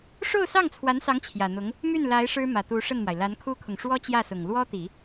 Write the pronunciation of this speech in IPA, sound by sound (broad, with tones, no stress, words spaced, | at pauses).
ʂo˥˧ʊ̯sɑ˥˩ŋt͡sʰwa˧˥nsɑ˧˥ŋ t͡ɕʰjä˨˩n̪ʊ˧˥ŋ | my˥˩nla˧˥ɪ̯ ʂɻ̩˥mä˨˩t̪u˧˥ ʂə˥˩nmwa˩ɪ̯ la˧˥nkʰu˥kʰʊ˨ŋ ʂwɔ˥t͡ɕjä˥˩sʊ˨˩ŋ lwɔ˥t̪i˨˩˦